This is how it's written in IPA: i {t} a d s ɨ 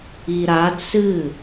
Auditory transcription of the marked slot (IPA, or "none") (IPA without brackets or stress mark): ɾ